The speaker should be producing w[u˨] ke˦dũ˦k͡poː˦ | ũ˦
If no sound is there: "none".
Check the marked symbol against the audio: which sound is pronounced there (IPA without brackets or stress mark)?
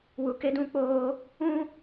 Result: u˦